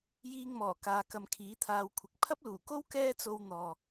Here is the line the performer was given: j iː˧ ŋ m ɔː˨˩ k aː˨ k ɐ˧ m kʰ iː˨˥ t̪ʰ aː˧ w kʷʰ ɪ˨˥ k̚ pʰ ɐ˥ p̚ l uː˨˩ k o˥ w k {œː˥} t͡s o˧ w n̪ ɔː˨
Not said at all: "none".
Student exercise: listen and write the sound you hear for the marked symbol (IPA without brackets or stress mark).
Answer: ɛː˥